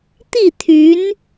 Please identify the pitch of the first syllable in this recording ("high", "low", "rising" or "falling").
falling